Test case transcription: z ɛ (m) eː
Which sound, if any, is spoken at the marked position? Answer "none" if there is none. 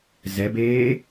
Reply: b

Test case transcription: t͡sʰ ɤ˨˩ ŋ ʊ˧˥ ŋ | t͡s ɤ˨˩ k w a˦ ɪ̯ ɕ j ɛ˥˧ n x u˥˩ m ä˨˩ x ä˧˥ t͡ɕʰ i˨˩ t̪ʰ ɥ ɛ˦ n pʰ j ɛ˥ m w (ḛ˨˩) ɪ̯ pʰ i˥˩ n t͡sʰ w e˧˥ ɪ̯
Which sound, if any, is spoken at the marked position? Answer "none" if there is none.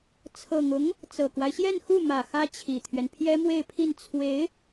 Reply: e˥˧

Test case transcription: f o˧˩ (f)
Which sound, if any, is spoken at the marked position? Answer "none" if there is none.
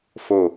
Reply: none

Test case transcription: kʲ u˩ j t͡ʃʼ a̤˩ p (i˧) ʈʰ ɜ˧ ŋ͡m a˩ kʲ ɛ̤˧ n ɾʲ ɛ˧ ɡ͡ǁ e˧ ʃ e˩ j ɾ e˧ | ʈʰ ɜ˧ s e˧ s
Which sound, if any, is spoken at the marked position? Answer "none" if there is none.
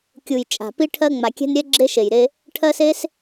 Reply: i˧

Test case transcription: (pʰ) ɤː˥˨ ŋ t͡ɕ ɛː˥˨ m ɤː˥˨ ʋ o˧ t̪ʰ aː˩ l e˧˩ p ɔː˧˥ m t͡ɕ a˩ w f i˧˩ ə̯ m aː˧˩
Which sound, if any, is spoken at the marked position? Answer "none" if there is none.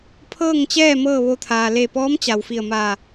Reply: pʰ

